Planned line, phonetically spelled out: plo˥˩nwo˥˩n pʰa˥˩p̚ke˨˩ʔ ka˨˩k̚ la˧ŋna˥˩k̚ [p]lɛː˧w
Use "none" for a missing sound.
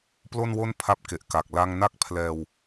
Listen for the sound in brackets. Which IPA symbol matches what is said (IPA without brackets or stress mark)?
pʰ